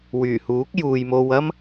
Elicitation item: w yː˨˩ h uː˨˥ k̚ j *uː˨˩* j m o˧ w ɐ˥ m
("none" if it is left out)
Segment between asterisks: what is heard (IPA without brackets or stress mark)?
uː˨